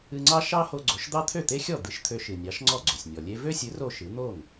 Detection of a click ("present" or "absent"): present